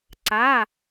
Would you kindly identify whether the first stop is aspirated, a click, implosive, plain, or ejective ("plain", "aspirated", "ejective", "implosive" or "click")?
click